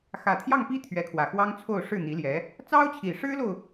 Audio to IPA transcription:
xä˨˩t̪ʰjɑ˥˩ŋpi˥ t̪ʰɥɛ˧˥kʰwä˨˩xwɑ˥ŋ t͡sʰo˥˧ʊ̯ ʂɻ̩˥˩ n̪i˧˥ljɛ˧˥ | t͡sɑ˥ʊ̯t͡ɕʰi˨˩ʂɻ̩˥lo˨ʊ̯

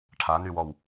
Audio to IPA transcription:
ʈʰanywɔw

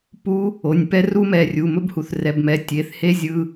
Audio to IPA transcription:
pu˦˥ | o˩˧˩nʲpɛ˦˥ru˦˥mɛ˩˧˩ rʲu˩˧˩ mɵ˦˥bhu˩˧˩θrɛ˩˧˩bmɛ˩˧˩ tʲe˩˧˩θ he˦˥ zʲɯ˩˧˩

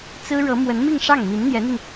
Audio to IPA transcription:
t͡sɹ̩˥ɻɤ˧˥ mwə˧˥nmi˥˧ŋʂɑ˥˩ŋ mi˧˥nn̪jɛ˧˥n̪i˧ŋ

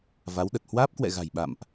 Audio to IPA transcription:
va˨˦w ɗə˨˩t̚ hwaː˦˥p̚kwɛ̰˧˨ɣa̤˨˩j ɓa̰˧˨mʔ

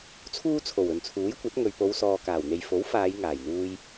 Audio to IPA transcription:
t͡sʰuː˥t͡sʰo˨˩w ɵ˨nt͡sʰuː˨˥jkʷɐ˨˥t̚ ŋɵ˨ɥpo˨˧wsɔː˨ kaː˨˩wn̪e˨j fo˨˥w faː˨˧j ŋaː˨˩jn̪uː˧j

